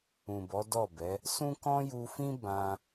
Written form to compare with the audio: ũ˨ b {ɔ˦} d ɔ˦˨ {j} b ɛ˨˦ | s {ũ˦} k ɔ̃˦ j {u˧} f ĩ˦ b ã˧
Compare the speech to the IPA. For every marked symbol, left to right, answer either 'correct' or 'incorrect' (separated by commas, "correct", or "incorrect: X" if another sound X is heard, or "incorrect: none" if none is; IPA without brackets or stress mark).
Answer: incorrect: ɔ˨˦, incorrect: none, correct, correct